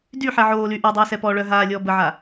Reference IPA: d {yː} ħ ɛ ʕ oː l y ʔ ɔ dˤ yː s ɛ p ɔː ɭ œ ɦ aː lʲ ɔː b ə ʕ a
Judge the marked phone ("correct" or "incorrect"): incorrect